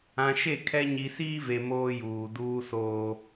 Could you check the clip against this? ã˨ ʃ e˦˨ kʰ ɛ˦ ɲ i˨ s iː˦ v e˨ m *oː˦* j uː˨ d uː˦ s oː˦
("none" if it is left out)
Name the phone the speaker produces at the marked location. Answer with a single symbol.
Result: oː˦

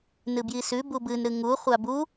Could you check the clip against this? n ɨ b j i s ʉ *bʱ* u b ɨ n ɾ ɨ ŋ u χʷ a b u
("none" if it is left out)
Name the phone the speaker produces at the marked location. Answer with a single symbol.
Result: b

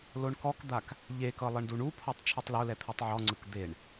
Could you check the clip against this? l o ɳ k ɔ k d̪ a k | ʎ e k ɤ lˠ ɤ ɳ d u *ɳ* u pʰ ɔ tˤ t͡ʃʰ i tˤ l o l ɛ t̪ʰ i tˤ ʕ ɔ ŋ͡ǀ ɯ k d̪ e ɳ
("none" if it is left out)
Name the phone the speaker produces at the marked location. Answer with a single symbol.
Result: ɳ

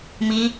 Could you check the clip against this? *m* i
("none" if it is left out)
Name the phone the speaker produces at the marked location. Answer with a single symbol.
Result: m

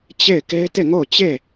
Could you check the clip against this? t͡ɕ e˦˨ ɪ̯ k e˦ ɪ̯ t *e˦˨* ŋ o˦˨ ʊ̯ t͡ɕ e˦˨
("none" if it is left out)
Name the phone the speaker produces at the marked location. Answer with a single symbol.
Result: e˦˨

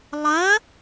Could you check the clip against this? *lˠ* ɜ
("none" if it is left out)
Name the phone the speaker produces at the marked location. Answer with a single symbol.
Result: lˠ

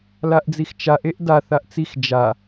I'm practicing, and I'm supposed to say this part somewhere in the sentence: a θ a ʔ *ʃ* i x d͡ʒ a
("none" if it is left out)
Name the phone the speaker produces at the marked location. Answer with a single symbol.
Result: t͡s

